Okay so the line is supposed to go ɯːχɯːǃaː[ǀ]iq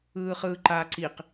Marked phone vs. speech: correct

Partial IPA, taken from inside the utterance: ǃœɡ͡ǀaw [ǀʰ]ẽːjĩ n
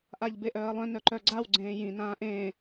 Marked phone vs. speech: incorrect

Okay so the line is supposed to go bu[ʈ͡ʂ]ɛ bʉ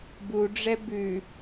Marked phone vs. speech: incorrect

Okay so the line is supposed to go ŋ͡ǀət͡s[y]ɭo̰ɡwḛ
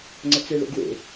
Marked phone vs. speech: incorrect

